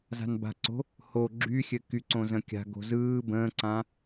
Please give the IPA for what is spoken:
z a̤ n b a̤ ǀ o̤ | h o ɡ͡ǁ y xʲ ɘ k y ǀ õ z ə̃ kʲ a̤ ɡ o̤ z ɯː b ə̃ː ǀ ã

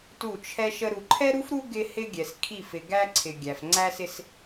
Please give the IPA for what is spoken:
t u˦˨ t͡ʃʰ ɛ˦ ʃ ə˦ ɾ u˨ ǃʰ ɛ˦ ɾ u˦ f ɾ u˦ ɡ ɪ˦ h ɪ˦ ɡʲ ɛ˨ s kʰ i˦˨ f ɪ˨ ɡ æ˦ ǀʰ ɪ˨ ɡʲ æ˨ f ŋ͡ǀ æ˦ s ɪ˦ s

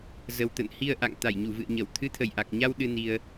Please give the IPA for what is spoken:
z ə˨˩ w t̪ ə̰˧˨ n h i˧ ə̯ ʔ a̰˧˨ ŋ t̪ a˧˩ j ɲ u˧˩ v ɨ̰˧˨ ə̯ ɲ ə˧˩ w t̪ʰ ɨ˨˦ t̪ʰ ə˧˩ j ʔ a˨˩ k̚ ɲ a˧ w ɗ ɨ˧ n i˧ ə̯

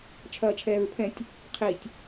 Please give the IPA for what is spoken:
t͡ʃʰ ɐː t͡ʃʰ ɛː ɹ pʰ ɛ̃ tʲ | qʰ i tʲ

